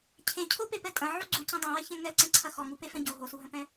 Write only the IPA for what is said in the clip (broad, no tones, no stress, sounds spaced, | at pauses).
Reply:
cʰ ẽ cʰ o p e p ɛ tʼ ɐ̃ ʕ u ɡ͡ǀ u c ɐ̃ dˤ ẽ w ɛ ç ɛ̃ ŋ ɛ ǀ ɛ̃ ǀʰ ɐ x ɔ ŋ u p e f ɛ̃ ɟ o ɦ o s u ɦ ɐ̃ p ɛ̃